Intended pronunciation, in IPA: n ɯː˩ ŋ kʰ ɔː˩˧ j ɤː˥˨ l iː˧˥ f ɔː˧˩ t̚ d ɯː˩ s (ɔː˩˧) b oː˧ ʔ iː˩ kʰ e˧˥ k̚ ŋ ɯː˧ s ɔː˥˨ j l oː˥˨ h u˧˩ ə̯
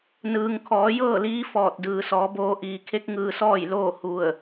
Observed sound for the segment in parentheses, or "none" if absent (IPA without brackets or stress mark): ɔː˩˧